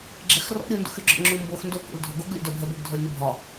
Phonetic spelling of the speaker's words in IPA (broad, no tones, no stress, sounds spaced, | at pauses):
ɡ͡ǁ ɛ x r ɔ̰ ɾʲ u n d ṵ x y ɡ͡ǁ ɔ̰ ŋ͡ǁ u m b o x n d o k ṵ l dʱ ɔ ɡ o ɡ lʲ ṵ d œ bʱ ɛ b o ɡ dʱ ɔ lʲ n y bʱ ɒ